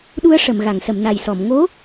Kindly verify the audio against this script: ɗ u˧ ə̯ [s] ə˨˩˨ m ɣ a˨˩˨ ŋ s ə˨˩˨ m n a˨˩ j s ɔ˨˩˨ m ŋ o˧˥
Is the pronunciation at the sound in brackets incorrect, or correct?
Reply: incorrect